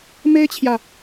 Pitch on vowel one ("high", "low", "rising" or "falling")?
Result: high